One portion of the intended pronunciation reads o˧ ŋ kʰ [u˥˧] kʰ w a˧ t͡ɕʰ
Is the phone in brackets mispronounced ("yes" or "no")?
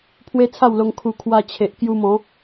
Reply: yes